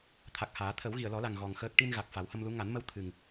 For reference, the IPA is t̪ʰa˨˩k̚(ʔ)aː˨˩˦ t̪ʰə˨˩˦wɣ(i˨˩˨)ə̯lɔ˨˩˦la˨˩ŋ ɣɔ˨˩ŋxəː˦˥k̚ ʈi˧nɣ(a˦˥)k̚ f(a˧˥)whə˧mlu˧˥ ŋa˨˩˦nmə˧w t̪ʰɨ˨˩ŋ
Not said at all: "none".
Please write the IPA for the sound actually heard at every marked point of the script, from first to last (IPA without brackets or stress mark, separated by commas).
h, i˨˩˨, a˨˩, a˨˩˦